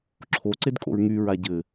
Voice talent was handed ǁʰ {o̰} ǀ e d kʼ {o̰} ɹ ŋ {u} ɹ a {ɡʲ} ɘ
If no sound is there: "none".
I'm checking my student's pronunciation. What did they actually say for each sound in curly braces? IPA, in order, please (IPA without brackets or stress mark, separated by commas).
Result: o, o̰, y, ɟ